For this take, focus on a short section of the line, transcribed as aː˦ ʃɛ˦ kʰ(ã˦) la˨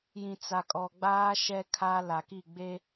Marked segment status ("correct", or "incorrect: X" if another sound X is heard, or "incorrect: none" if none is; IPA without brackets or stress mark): incorrect: a˦